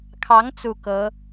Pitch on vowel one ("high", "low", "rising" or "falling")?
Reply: rising